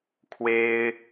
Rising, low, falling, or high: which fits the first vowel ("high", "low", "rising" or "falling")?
high